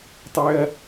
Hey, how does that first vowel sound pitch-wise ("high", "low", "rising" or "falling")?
high